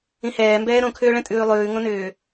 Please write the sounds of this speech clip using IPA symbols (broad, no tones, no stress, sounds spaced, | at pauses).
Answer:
ĩ h ɛː m b ɛː ɾ õ kʰ ʏː ɭ ɛ̃ tʼ ʉː lˠ ʉː ŋ õ n ʏː